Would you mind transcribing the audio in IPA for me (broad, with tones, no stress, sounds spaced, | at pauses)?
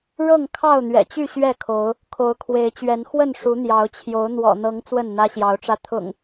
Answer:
ɻ ɤ˥˨ ŋ kʰ ɑ˥˨ ʊ̯ n̪ ɥ ɛ̰˨˩ t͡ɕ y˥˨ ɕ ɥ ɛ˥˨ kʰ o˨˦ ʊ̯ | kʰ o˨˦ ʊ̯ kʰ w e˨˦ ɪ̯ t͡ɕ ɥ ɛ˨˦ n x w ə˥˨ n ʂ u˨˦ n̪ j ɑ˨˦ ʊ̯ t͡ɕʰ j o˨˦ ʊ̯ n̪ w ɔ̰˨˩ n̪ ɤ˨˦ ŋ t͡s w ə˥˨ n n̪ ä˦ ɕ j ɑ˨˦ ʊ̯ ʈ͡ʂ ä˧ t̪ʰ ʊ̰˨˩ ŋ